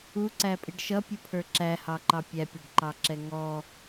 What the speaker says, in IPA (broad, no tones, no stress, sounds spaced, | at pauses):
u ǀ æ pʼ i ɖ ʃ ʌ pʲ u pʰ ə˞ ǁ æ h ɑ ǃ ɑ pʲ æ pʲ ɛ ɖ ǃ ɑ ǁ ɛ ŋ ɔ